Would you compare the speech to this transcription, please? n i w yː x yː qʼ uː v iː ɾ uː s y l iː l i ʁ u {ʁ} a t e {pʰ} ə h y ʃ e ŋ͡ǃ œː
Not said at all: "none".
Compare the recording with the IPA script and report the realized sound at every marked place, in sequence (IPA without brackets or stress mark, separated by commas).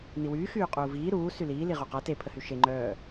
q, pʰ